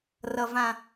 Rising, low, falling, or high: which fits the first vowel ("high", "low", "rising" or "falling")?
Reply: low